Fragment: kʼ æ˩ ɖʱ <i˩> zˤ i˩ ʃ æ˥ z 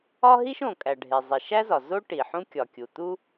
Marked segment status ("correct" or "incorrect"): incorrect